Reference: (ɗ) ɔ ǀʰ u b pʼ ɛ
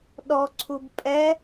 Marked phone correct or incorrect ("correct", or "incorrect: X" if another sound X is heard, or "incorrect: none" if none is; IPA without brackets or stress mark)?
correct